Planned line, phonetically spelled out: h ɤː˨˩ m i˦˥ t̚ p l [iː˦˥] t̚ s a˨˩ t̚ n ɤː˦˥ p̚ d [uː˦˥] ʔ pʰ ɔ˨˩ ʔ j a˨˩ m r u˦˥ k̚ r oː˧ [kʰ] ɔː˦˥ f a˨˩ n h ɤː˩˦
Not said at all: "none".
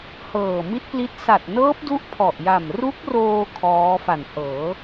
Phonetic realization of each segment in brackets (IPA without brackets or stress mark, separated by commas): i˦˥, u˦˥, kʰ